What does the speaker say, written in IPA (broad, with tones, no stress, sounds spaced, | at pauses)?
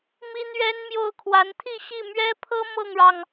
m i˥ n̪ ɥ ɛ˥ n m j o˥˩ ʊ̯ kʰ w a˧˥ n t̪ʰ i˥˧ ɕ i˥˩ m ɥ ɛ˥ pʰ ɤ˥ m ɤ˥˩ ŋ ɻ ɑ˩ ŋ